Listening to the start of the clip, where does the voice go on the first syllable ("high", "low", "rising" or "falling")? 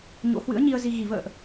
rising